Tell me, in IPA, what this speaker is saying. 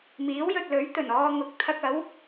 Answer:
miː˨˥wjɵ˨t̚lɵ˨˥ɥt̪ɵ˨˩n ɔː˧ŋʊ˨˥k̚ t̪ʰɐ˧k̚ɐ˨˥w

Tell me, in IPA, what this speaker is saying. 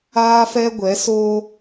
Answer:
aː˦fɛ˦ ɡʷɛ˨˦soː˦

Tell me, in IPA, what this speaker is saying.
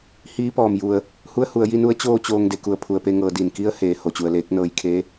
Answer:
hiː˧˥pɔː˩mju˩ə̯ | hu˧˥ə̯hu˩˧ə̯ji˧nu˧˥ə̯ t͡ɕoː˥˨t͡ɕoː˧ŋ de˩˧ku˧˩ə̯ pʰu˩ə̯pe˧ ŋɤː˩˧di˩nki˧˥ə̯heː˩ ho˩t͡ɕu˩ə̯leː˧˥k̚ nɤː˧jkʰeː˧˥

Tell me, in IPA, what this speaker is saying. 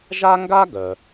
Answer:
ʒa˥ŋɡa˥ ɡœ˩

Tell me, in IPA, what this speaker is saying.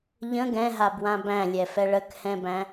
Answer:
ʎə̃ ɡɛ̃ɦabwã bæ̃lʲɛfɛ ɭəkhɛ̃bæ̃

